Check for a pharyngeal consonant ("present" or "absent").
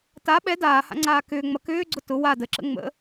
absent